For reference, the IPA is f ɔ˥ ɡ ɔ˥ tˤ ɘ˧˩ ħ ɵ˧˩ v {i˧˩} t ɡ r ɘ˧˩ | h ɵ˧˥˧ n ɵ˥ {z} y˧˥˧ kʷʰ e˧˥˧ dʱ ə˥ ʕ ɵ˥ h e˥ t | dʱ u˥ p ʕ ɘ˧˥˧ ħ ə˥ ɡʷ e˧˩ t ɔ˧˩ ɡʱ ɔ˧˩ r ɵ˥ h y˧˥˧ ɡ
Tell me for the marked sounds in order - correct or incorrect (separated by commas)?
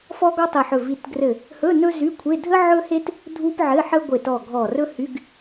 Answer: correct, correct